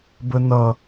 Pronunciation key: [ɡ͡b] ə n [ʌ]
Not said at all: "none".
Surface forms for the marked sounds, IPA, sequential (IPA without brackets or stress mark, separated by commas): b, ʌ